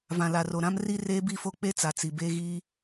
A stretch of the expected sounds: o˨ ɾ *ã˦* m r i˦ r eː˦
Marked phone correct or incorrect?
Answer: correct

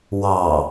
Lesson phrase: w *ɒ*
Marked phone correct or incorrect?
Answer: incorrect: ɑ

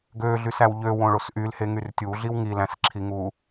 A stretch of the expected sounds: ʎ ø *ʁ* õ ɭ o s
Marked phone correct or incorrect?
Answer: incorrect: w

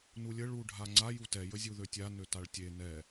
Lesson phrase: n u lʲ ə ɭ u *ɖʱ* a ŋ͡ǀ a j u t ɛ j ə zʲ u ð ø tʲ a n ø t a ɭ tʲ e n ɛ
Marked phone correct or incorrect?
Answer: correct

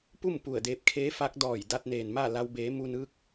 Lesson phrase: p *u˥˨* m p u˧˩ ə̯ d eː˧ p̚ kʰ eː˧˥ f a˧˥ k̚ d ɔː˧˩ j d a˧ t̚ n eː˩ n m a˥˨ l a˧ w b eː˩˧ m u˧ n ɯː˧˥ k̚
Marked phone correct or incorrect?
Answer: correct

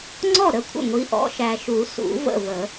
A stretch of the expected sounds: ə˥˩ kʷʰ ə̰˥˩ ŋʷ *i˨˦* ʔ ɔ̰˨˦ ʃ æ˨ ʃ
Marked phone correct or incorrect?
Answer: correct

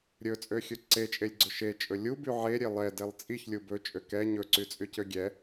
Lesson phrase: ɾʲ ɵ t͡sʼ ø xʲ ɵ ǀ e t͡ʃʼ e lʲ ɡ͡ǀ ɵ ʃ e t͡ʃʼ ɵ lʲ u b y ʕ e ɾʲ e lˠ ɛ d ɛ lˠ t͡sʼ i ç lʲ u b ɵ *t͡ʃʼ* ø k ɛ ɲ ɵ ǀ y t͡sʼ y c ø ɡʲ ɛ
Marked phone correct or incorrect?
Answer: correct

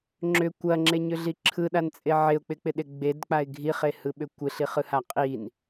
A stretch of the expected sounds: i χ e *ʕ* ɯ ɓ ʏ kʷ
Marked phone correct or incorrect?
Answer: incorrect: h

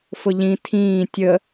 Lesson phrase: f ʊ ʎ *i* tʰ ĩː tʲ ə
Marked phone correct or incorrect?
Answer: incorrect: ĩ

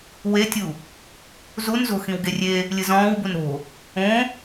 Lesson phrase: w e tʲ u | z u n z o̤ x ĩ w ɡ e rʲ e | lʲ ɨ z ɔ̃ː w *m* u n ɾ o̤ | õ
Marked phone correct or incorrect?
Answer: incorrect: b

